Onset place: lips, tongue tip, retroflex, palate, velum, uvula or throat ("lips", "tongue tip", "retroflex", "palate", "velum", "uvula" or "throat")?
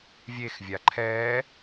lips